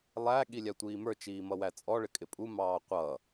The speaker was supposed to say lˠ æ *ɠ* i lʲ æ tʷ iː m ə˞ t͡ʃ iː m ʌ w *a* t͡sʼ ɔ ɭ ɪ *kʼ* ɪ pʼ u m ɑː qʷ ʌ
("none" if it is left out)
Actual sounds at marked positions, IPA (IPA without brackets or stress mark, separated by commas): ɠ, æ, kʼ